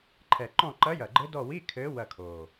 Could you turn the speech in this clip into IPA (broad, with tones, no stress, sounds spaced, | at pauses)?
ǃʰ ɛ˨˩ ǃ ɔ̃˦˨ ǃ ɐ˧˥ j ɐ˨˩ ɡ͡ǃ ɘ˧˥ d ɔ˦˨ w i˧˥˧ kʰ ɘ˧˥ w ɐ˦˨ kʰ o˨˩